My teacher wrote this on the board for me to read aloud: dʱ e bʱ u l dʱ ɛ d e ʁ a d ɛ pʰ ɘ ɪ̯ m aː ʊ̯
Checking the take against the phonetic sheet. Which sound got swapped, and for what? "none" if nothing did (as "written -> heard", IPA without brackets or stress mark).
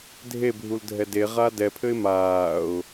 none